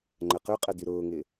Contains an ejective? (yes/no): yes